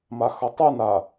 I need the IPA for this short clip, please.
maxʌtˤɯna

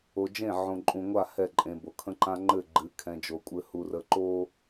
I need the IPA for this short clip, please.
o˨d͡ʒẽ˦˨ ʕõ˨ǃʼũ˨ŋʷa˦˨ hɛ˦˨ǃʼẽ˨bo˨ kʰə̃˦ǃã˦ ŋ͡ǃɘ˦˨ɡ͡ǃɨ˨˦kʰɛ̃˨d͡ʒo˨ kʷʼɘ˨hu˨ rə˨ǃo˦

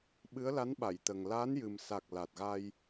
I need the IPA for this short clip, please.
ɓɨ˧˥ə̯la˧˥nɓa˨˩˨jt̪ə˨˩ŋ laː˧˥njɨ˨˩msa˨˩k̚ la˨˩t̚ɣa˧j

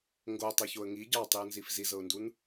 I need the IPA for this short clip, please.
ŋɡotˤɤçoə̯ ŋi ɟɑtˤiʊ̯nzif zizɤʊ̯ndun

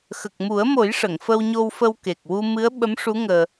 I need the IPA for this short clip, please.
xə˨˩k̚mu˨˩˦ə̯mo˨˩˦j ʂə˨˩˨ŋfə˧wɲo˧wfə˧w ke˨˩k̚ wu˧ mɨ˧˥ə̯ ɓə˧˥mʂu˧˥ ŋəː˧

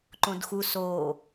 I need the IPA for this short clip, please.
ǃõdxu so

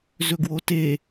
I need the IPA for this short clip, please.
zɵɡwote

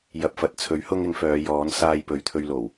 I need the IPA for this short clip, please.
jɐ˨p̚fɐ˨t̚ t͡sʰɵ˨˥ɥhʊ˧ŋɪ˨˧ŋ fœː˨˧jɔː˨˥nsaː˧jpɵ˨ɥ t̪ʰɵ˧ɥlo˨˩w

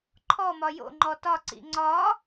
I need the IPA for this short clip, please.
ǃʰɔ mɒjo̰ŋ͡ǃɔ tɒǀḭ ŋ͡ǀɒ

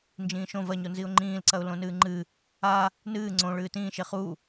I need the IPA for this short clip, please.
nd͡ʒĩːʃõ vɐɲonziʊ̯ ŋ͡ǃĩːlǀɐʊ̯ lõnɨːŋ͡ǃɨ | a | nɨː ŋ͡ǀõ ɭɨːtĩːʃe χu

